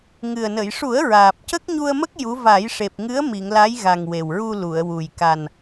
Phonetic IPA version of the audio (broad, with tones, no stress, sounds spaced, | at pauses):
ŋ ɨ˨˩ ə̯ n ə˨˩˨ j ʂ u˨˩˦ ə̯ ɹ aː˨˩ p̚ c ə˦˥ k̚ ɲ u˧ ə̯ m ə˦˥ k̚ j u˧˥ v a˨˩˦ j ʂ e˨˩ p̚ ŋ ɨ˧˥ ə̯ m i˨˩˨ ŋ l a˧˥ j ɣ a˨˩ ŋ w e˨˩ w ɹ u˧ l u˨˩˨ ə̯ w u˨˩ j k a˨˩ n